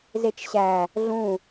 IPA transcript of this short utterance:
zet͡ʃɕæ | ɮũ

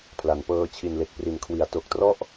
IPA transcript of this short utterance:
pʰla˩˦npɤː˧ t͡ɕʰi˨˩nle˨˩k̚pri˨˩nkʰwi˩˦a̯ to˨˩k̚trɔ˥˩ʔ

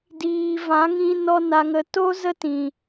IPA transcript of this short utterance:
diː˧ vã˨˦ŋĩ˧ nɔ˦na˧ŋə˧ to˦ zə˦tĩ˨

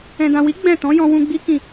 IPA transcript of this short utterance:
ɛ̃˨dã˨wi˨˦ ɡ͡bɛ̃˦˨ tɔ̃˨˦jɔ̃˧ wũ˧ɡ͡bi˦ kĩ˦˨

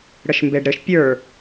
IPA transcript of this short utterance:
ɽəʃmbeɖɾɘʃ pʲə˞

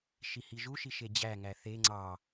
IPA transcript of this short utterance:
ʃihiʒuʃi ʃed͡ʑæŋæ θe ŋ͡ǀɑ

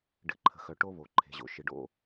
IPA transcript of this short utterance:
ɖɨ˨ǃʰə̤˨xœ˨ ʈo˦βo˨ ǃʰe̤˨ʑo̰˨ ʃɨ˨ɖo̰˦

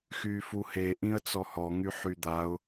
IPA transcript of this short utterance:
xyfuhe ʔĩə̯t͡sɔhɔ ŋyħyd̪aʊ̯

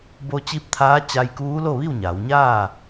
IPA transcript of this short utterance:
bo˧ t͡ɕi˧˥p̚t̪ʰaː˧˥t͡ɕa˧jkuː˧˥ lo˥˨ʋi˥˨wɲa˩˧wɲaː˥˨

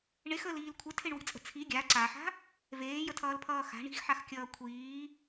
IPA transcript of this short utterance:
ɳexəːliːl kʷʰetʰeɳwi̤t͡sʼə̤ t͡sʰi ɡʲa ǀaħa̤ | veːjətʰʌːlpʰʌː xa̤ɳ i̤xħaxkʲʌː kʷʰiː

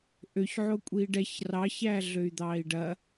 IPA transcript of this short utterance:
ʔøçʕo kʷʼiːɖɛç rɑçæː ɮøy̯d̪ɑːi̯ɖɐ

